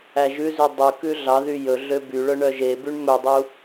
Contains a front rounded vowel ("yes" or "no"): yes